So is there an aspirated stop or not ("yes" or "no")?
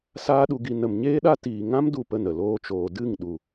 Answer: no